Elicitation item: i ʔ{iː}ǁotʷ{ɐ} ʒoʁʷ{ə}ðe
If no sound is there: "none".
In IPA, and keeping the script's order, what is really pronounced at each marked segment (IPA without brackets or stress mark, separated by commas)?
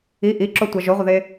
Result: i, a, ʌ